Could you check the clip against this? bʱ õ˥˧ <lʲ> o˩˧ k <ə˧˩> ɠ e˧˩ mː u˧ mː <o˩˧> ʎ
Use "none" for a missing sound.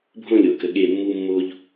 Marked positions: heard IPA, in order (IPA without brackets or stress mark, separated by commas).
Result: lʲ, ə˩˧, o˧